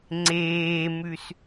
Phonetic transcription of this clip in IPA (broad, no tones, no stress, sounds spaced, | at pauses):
ŋ͡ǀ eː m ʉ s